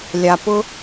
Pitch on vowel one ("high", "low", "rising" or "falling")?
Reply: low